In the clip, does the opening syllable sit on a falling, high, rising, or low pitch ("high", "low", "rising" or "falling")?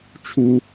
low